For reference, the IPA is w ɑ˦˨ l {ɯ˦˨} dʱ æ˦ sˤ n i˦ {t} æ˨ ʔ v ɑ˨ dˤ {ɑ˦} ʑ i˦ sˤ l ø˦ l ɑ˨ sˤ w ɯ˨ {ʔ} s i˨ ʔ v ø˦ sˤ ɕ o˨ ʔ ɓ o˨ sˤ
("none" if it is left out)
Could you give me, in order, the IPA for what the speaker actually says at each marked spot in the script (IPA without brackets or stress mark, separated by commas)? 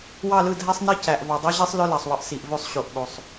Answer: ɯ˦˨, c, ɑ˦, ʔ